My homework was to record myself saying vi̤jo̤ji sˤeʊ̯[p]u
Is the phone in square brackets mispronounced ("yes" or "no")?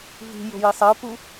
no